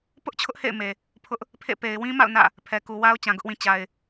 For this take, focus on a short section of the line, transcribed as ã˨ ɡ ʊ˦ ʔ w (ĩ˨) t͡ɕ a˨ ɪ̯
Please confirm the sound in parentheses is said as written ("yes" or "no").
yes